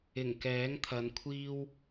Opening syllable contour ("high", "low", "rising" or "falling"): low